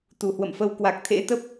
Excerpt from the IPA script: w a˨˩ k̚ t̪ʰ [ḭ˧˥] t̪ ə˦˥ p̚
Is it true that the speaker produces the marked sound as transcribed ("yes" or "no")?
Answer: no